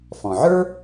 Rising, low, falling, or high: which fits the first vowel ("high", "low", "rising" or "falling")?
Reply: low